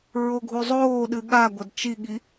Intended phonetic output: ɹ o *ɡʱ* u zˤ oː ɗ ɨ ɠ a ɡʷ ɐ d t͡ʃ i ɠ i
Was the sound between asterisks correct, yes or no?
yes